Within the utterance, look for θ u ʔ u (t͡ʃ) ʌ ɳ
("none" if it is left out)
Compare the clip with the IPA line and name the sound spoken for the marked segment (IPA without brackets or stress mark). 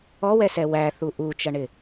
t͡ʃ